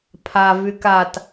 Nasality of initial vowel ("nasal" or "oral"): oral